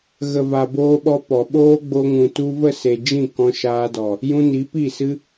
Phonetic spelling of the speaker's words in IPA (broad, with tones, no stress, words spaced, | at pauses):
ɣə˨ va˨boː˧ɓɔ˧ pɔ˨ɓoː˦ ɡ͡bo˧ŋũ˨ tu˧və˦˨se˨ d͡ʒĩ˦˨kɔ̃˧ʃaː˧dɔ˨ | jũ˧ ni˨˦pi˦˨sɨ˦